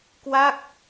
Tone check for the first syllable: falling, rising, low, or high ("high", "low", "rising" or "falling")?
falling